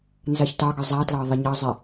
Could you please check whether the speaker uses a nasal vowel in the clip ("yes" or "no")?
no